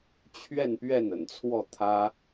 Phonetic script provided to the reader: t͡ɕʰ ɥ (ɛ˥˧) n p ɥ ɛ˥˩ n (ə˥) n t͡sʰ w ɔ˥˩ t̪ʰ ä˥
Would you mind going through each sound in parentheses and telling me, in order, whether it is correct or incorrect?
correct, incorrect: ə̰˨˩

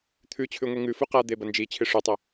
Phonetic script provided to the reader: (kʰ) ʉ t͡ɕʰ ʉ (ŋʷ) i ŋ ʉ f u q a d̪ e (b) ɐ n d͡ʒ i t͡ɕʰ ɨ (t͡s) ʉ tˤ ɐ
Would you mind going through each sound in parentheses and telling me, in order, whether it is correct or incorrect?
incorrect: t̪ʰ, correct, correct, incorrect: ʂ

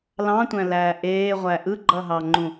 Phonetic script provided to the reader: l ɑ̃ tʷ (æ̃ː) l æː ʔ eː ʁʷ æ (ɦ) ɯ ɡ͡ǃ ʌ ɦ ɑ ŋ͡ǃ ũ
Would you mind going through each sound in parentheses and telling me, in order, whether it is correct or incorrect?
incorrect: æ̃, incorrect: ʔ

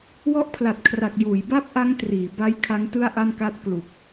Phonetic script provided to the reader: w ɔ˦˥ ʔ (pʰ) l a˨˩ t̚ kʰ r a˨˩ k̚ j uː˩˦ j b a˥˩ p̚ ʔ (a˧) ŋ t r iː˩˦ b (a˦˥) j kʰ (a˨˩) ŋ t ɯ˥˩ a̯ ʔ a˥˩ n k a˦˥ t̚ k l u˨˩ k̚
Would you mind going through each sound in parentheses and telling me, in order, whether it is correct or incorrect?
correct, incorrect: a˦˥, correct, incorrect: a˦˥

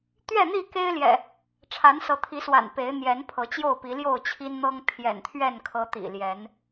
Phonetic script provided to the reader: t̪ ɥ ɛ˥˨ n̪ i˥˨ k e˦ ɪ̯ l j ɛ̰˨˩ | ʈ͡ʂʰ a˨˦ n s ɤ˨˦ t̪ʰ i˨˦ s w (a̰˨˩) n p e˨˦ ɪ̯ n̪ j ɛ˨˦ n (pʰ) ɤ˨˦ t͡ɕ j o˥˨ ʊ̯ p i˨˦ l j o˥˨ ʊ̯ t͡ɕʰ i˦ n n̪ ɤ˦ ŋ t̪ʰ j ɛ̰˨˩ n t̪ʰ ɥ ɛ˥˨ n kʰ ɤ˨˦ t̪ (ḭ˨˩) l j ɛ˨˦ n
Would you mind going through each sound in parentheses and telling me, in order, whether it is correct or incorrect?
correct, correct, correct

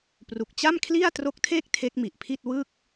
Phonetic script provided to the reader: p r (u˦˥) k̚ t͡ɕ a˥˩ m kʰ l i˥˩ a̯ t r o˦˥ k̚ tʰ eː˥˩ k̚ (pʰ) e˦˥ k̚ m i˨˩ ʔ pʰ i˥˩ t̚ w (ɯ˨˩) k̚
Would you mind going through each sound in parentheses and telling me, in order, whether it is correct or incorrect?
incorrect: u˨˩, incorrect: tʰ, incorrect: ɯ˥˩

